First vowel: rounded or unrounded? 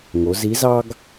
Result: rounded